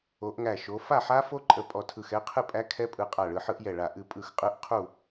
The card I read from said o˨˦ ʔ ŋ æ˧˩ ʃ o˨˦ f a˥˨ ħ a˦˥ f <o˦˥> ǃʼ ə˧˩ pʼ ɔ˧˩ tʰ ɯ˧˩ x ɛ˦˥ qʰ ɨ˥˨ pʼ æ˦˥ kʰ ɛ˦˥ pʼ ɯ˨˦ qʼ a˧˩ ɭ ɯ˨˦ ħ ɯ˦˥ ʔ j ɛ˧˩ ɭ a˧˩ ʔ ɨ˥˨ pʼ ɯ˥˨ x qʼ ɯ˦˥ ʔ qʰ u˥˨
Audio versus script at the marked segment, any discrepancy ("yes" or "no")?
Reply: no